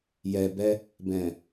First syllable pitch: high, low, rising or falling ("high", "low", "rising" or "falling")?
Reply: low